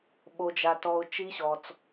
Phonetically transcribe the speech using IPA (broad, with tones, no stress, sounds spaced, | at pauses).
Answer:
ɓ o˧ d͡ʒ a˧ t ɔ˧ ʊ̯ t͡ʃ i˦˥ ɕ ɔ˧ t͡s